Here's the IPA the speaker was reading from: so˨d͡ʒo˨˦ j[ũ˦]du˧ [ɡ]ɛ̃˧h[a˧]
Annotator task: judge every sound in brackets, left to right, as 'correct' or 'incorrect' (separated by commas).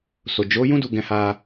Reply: correct, correct, correct